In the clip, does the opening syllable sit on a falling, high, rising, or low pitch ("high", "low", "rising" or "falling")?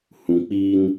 low